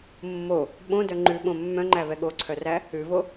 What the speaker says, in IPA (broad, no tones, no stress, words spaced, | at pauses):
mːo | ɓõdœ ŋ͡ǃʉɓõ mːœ̃ŋ͡ǃævɛ ɠoǀʰœræ | ʉvo